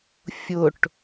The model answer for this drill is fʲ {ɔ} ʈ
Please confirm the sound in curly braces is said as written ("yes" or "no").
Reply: no